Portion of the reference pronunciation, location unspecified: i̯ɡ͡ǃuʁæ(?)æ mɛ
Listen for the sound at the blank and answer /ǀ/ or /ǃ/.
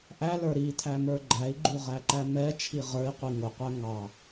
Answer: ǃ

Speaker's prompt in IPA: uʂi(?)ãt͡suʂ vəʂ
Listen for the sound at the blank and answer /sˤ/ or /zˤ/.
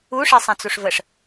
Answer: sˤ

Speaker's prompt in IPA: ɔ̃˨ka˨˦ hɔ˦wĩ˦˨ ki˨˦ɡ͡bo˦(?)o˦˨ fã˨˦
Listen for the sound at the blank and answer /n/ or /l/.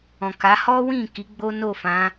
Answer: n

